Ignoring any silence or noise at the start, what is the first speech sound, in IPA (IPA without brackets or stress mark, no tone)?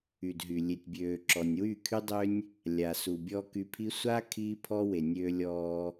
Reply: y